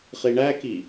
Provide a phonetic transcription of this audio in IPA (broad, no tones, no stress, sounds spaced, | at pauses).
χ i ɳ æ k i